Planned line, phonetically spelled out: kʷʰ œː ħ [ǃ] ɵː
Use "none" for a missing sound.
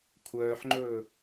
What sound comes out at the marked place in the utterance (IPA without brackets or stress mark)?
ŋ͡ǃ